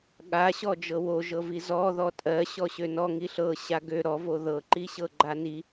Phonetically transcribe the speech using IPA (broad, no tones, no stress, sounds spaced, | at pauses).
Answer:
ɠ a ɕ ɔ d͡ʒ ɤ w o ʒ ɤ v i z ɔ ð ɔ tʼ ɜ ɕ ɔ ɕ ø n ɔ ŋ i ɬ ɤ ɕ a ɡ ø ɾ ɔ v o ð ɤ ǃ i ɕ ɤ ɡ͡ǃ a n i